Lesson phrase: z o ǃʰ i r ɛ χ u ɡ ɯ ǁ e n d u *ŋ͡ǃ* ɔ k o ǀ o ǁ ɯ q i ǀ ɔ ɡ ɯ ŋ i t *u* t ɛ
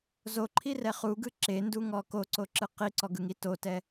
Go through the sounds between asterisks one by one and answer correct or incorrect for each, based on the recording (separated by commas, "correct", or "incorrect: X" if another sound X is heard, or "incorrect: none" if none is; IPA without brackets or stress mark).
incorrect: ŋ, incorrect: o